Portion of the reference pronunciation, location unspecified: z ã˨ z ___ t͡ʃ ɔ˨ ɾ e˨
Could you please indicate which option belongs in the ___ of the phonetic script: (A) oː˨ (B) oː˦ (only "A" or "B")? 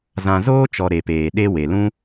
B